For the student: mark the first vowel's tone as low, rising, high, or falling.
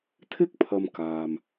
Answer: high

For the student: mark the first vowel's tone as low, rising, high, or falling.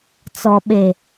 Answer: low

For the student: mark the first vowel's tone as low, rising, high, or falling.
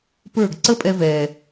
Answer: falling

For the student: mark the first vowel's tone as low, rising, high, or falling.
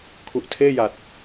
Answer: low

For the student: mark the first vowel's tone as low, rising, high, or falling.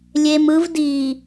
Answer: low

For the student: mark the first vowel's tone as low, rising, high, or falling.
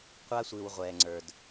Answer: high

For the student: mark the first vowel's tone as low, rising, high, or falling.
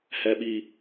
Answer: high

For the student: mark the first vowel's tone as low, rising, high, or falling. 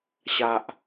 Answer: high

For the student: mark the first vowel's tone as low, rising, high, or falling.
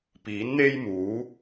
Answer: rising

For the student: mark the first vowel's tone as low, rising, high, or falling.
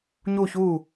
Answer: falling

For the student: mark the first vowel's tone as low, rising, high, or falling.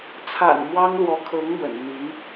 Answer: low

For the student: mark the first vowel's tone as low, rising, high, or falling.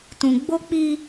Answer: low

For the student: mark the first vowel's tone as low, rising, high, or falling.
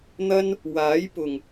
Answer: high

